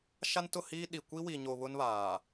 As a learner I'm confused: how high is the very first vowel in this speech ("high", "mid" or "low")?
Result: low